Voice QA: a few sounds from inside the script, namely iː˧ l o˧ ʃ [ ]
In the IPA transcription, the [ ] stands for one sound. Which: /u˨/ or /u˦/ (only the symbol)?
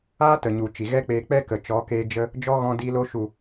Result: u˨